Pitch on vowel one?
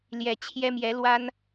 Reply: low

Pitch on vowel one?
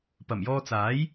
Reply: low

